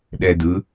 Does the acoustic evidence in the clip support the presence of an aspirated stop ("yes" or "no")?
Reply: no